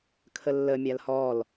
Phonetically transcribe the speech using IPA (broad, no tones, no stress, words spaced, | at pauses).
kʰəlːə mʲalhɔl